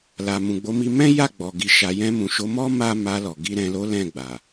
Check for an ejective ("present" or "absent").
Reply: absent